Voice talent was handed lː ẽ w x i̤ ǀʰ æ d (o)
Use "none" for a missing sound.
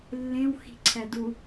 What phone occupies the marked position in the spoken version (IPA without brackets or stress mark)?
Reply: u